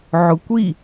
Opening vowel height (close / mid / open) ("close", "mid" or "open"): close